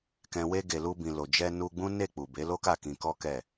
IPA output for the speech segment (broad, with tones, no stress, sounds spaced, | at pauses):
k ɛ̃˨ w e˧ ɡ e˨ l u˧ b ĩ˨ l o˨ d͡ʒ ɛ˧ n u˧ ɡ͡b ũ˦ n e˦˨ k͡p u˨ b e˨˦ l o˦ k a˦˨ k ĩ˧ k ɔ˦ k ɛ˦˨